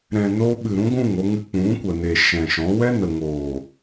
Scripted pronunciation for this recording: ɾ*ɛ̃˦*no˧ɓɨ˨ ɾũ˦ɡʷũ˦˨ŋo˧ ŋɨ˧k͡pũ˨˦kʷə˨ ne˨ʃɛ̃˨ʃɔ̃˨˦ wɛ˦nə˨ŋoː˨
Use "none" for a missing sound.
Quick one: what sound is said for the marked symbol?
ɛ̃˨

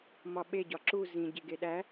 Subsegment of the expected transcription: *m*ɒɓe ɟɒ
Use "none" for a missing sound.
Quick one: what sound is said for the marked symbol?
m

